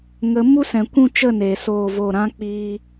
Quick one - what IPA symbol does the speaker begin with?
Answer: ŋ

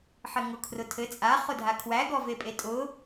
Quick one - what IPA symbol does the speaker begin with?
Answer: ħ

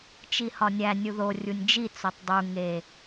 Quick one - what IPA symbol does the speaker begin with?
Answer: t͡ʃ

